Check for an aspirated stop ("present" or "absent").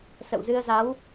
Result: absent